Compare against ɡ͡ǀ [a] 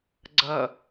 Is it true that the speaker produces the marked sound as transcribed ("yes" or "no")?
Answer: no